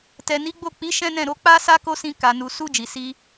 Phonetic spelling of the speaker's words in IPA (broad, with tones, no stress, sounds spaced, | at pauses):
t ɛ˨ n i˨˦ ɡ͡b o˦˨ k͡p i˨˦ ʃ ɛ̃˦ n ɛ̃˦˨ ɾ o˧ k͡p a˦ s a˦ k o˦ s ĩ˧ k a˨ n u˨ s u˧ d͡ʒ i˨ s i˧